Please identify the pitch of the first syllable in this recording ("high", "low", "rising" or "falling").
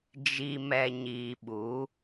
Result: low